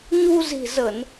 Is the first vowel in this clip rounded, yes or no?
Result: yes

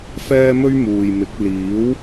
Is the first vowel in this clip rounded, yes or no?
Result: no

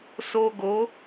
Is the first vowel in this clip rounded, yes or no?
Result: yes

